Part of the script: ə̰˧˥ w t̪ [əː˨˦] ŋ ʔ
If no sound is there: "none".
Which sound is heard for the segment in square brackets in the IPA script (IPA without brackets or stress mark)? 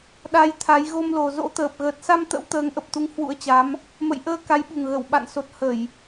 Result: əː˨˦